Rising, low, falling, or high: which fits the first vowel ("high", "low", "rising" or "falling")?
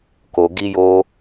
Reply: low